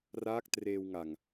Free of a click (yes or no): yes